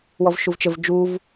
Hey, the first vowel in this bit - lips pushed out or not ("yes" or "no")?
yes